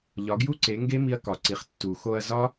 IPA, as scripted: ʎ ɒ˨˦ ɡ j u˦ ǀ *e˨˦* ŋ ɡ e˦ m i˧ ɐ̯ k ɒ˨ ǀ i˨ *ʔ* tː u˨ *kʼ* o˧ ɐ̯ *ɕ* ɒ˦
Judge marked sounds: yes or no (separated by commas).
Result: yes, no, no, no